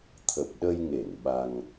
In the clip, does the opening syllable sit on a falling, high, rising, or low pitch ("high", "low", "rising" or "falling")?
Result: low